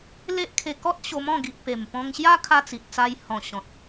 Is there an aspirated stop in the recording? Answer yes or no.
yes